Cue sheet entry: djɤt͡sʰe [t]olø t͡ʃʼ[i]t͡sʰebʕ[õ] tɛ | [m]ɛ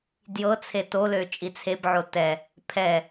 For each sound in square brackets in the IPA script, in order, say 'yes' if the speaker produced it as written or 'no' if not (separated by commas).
yes, yes, no, no